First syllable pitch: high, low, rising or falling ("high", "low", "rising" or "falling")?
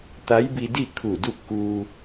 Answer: rising